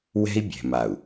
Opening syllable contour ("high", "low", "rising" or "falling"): high